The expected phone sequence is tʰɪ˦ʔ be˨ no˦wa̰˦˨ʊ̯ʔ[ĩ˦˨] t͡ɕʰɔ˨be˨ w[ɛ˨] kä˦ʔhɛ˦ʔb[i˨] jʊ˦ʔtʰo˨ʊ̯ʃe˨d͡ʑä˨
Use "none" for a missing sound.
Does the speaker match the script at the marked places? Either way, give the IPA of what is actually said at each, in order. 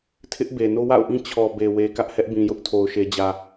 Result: ĩ˦, e˨, ĩ˨

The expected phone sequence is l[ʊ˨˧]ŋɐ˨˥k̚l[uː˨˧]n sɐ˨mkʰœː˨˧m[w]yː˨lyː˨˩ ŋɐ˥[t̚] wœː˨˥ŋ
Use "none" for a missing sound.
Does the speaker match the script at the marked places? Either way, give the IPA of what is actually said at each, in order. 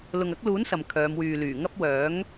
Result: ʊ˨, uː˨˥, w, p̚

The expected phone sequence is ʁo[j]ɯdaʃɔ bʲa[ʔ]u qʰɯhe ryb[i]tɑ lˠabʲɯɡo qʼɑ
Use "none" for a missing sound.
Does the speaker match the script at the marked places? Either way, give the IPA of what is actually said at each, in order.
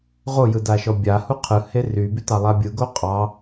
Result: j, h, y

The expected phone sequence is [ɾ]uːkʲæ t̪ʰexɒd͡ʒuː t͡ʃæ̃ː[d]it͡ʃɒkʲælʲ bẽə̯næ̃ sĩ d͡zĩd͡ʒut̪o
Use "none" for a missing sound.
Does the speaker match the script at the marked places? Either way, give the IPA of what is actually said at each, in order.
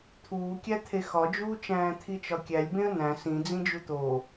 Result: t̪ʰ, t̪ʰ

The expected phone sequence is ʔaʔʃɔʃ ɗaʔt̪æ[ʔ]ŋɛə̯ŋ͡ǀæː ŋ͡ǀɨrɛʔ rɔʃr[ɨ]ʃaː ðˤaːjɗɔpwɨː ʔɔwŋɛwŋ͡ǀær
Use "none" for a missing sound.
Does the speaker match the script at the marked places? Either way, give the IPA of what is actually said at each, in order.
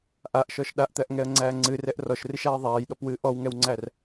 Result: ʔ, ɨ

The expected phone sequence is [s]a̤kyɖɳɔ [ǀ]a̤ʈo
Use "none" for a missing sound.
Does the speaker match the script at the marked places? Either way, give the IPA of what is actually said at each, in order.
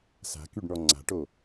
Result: s, ŋ͡ǀ

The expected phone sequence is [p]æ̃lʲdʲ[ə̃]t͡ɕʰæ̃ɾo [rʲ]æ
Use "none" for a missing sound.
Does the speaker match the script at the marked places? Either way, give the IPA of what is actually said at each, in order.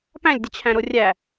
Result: p, ə, rʲ

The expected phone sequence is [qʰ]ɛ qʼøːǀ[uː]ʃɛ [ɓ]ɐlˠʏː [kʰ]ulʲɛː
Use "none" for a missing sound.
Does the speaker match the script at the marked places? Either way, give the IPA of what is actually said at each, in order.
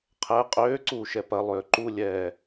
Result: qʰ, uː, p, ǃ

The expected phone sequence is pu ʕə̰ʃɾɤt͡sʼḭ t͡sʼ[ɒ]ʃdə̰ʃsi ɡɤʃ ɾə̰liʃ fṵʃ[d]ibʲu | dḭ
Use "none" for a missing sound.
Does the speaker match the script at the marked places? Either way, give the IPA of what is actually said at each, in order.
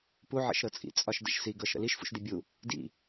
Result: ɒ, d

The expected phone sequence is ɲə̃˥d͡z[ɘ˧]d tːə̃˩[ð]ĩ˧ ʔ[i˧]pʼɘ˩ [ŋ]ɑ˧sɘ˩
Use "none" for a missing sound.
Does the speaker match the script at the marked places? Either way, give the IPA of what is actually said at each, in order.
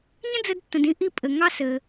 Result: ɘ˧, d, i˧, ŋ

